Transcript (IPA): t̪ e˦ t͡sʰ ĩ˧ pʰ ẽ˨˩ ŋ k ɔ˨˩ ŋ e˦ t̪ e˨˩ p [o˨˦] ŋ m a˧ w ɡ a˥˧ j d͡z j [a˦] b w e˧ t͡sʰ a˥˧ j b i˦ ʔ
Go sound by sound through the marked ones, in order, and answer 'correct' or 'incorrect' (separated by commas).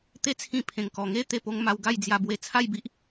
incorrect, incorrect